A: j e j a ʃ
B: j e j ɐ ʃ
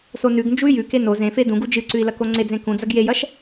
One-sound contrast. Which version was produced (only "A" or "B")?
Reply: B